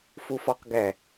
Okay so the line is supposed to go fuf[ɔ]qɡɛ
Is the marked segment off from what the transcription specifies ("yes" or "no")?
no